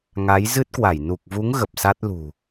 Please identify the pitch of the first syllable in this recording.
rising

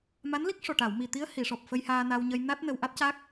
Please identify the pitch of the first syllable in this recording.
rising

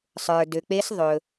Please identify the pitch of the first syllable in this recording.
low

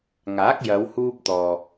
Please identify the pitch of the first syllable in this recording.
rising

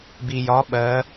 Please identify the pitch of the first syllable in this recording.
low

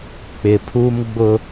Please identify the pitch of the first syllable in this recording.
low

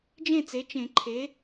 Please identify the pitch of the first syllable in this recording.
falling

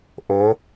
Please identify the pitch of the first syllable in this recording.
rising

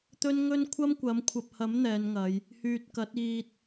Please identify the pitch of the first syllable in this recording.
high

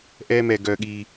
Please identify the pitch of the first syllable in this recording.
high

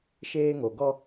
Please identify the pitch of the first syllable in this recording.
high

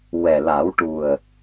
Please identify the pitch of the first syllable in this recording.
low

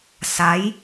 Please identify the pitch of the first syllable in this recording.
rising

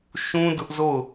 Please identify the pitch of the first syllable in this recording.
high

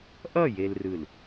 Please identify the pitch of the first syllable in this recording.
falling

